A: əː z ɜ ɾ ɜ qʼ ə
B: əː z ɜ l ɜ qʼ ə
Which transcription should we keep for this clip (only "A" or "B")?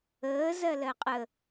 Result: B